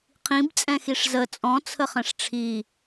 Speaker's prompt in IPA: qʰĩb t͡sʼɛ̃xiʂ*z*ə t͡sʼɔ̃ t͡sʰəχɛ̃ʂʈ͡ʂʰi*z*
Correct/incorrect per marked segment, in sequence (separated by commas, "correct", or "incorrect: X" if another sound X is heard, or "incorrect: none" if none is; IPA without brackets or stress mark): correct, incorrect: none